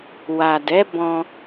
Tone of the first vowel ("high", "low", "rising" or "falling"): low